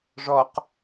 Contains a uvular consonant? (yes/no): yes